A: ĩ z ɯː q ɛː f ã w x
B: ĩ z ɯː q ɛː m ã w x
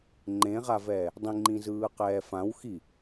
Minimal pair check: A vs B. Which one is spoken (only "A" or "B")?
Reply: A